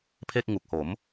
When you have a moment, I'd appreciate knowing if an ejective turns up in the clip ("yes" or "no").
no